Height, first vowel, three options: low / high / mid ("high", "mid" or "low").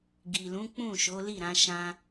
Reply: high